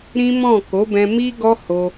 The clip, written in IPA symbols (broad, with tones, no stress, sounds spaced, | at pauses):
ɾ ĩ˦ m ɔ̃˦˨ k o˨˦ b ɛ̃˧ m i˦ ɡ ɔ˦ h o˧